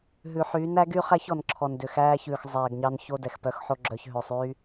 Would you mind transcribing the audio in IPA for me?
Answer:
ɦʉ˨ħyː˨˦n æ˨˦ɡy˦χæ˦ç ɔ˨n ǁʰɔ˨n dø˨xæː˧çʉː˨x zˤɛː˨ɡɲɑ˧n ço˧ dɛ˨xpœ˧xħo˧ ɡ͡ǁœ˨çɦø˨sˤ y˦

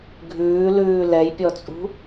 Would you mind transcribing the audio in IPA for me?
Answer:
ɡʱʉːlʉː lɛjpʲɔt͡sʼṳ

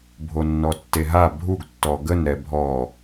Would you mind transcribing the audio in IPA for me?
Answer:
bʱonːɔtːeɦa bʱuɡtːɔ ɡənɾɛ bʱɔ

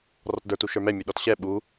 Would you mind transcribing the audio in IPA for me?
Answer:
rɔtdə˞t uʃə˞mɛ mʲuɗɔtɕɛ ɓu

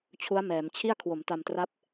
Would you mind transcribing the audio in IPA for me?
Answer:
t͡ɕʰu˦˥a̯ mɛː˩˦mt͡ɕʰi˥˩a̯ kʰwo˩˦mta˧mtra˦˥p̚

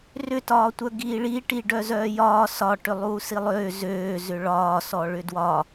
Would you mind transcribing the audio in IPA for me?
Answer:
rʏtɒːtʷœ ɡiːɭiʈi ɖœzœːjɒː sɒ ʈʏlˠuːsilˠøː zøː zʏɭɒːsɔ ɭʏdwɒ

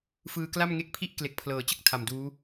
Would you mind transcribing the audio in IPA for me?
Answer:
fɯː˧kla˥˩mŋe˦˥k̚pʰi˥˩ʔ kle˨˩k̚pʰlɤː˩˦t͡ɕɯ˦˥k̚ tʰa˨˩mduː˦˥

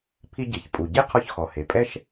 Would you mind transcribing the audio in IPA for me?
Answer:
pʰi˧ɟe˩ç pʼu˩ɟe˥ qʰɔ˧çxɔ˩he˩ pʼɛ˥ʃ

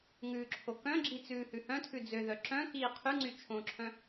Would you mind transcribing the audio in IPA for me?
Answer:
ŋʉːǁʰokœ̃ɡ͡ǁi t͡sʉːhʉhœ̃tʰʉ d͡zøðœ ǁœ̃ kiːqʰyŋ͡ǀy t͡ʃʰõǁʰœ̃

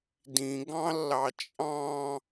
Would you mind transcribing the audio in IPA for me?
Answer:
dĩɡɑ̃lːɑ t͡ʃʼɑ̃

